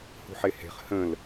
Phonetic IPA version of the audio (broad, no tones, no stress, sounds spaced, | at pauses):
h ṳ ħ e h e̤ χ h ə̃ l